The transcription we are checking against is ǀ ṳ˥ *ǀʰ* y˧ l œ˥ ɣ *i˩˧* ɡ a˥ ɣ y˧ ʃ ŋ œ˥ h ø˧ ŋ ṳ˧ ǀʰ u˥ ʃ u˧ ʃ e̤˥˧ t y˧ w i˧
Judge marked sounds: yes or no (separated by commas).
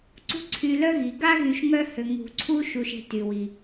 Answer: yes, yes